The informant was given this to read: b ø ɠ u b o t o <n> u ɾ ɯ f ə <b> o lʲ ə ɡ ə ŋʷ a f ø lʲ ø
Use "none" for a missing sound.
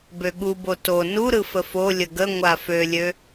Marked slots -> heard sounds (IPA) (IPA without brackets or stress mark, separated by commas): n, f